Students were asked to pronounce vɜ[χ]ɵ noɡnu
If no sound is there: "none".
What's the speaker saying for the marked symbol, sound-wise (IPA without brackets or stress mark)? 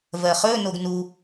χ